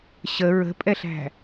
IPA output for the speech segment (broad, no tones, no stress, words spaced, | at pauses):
ɕə ɹə̤pʼɛɬæ̤